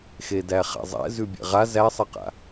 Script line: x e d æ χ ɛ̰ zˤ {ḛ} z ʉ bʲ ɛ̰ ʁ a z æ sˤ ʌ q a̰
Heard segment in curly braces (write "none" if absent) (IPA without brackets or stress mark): ɛ̰